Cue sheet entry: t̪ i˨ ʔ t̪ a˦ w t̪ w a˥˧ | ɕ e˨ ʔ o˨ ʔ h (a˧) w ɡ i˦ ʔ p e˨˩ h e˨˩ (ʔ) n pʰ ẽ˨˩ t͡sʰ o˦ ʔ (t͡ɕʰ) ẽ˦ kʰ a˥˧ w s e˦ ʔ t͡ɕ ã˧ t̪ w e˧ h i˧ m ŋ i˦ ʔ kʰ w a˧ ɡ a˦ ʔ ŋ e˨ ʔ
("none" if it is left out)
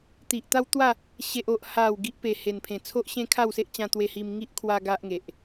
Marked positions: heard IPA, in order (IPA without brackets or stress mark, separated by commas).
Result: a˨˩, none, ɕ